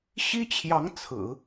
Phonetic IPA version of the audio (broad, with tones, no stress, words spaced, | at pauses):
ɕi˥t͡ɕʰjɑ˧˥ŋ t͡sʰɹ̩˨˩˦